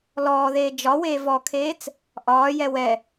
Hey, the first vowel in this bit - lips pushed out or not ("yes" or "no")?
yes